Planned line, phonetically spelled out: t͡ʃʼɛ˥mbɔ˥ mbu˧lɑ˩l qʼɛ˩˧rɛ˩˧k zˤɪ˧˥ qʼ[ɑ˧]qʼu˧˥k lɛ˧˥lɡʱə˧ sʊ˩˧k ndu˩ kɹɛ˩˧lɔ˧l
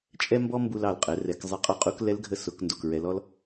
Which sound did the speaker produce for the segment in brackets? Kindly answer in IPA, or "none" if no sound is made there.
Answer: ɑ˧˥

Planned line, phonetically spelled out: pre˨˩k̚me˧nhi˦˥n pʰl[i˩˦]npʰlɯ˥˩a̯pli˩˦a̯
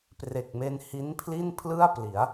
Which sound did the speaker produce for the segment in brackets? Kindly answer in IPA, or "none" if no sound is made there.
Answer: i˥˩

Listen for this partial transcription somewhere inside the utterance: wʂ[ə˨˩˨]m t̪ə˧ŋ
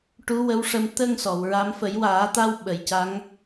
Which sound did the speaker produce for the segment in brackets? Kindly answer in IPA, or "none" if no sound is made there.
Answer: ə˧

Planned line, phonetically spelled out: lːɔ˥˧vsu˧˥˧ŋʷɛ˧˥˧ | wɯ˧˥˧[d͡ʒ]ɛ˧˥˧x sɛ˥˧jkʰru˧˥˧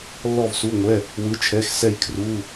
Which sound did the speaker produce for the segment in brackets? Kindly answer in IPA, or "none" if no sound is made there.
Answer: t͡ʃʰ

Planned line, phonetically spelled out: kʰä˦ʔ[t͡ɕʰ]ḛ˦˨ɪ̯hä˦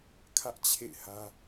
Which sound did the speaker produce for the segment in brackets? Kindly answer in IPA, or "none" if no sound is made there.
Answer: t͡ɕʰ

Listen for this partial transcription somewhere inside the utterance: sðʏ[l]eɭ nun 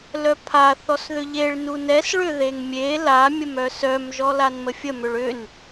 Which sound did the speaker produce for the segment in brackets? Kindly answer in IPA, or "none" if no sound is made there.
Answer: ʎ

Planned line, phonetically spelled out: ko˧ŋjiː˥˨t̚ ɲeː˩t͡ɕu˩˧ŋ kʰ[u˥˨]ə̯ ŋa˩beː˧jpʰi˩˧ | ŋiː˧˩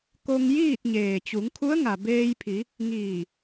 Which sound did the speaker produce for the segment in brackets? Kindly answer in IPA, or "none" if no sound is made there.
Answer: u˧˥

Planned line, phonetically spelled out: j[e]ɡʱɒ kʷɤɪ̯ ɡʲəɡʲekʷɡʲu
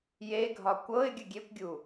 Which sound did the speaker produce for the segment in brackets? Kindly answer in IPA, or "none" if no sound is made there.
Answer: e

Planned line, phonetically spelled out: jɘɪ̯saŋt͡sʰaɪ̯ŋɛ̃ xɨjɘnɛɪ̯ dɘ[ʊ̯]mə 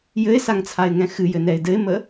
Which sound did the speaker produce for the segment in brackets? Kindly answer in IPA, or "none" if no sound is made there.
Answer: ɪ̯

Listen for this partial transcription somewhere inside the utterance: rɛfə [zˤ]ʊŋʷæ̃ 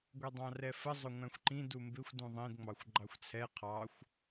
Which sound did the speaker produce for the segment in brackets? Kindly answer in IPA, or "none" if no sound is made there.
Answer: zˤ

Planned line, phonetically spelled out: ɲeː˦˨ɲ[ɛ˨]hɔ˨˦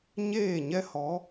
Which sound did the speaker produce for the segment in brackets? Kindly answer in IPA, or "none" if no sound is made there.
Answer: ɛ˦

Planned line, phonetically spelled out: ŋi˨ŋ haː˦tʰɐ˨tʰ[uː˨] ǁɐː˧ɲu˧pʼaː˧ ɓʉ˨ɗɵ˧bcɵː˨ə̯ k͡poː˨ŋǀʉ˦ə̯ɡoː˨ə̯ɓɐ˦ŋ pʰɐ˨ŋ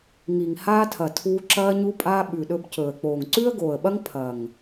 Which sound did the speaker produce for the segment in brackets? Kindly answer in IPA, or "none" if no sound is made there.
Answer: uː˧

